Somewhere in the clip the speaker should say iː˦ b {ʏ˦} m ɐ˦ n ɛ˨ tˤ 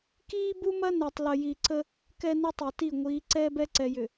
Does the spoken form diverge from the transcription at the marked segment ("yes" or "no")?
yes